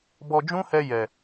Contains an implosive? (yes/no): no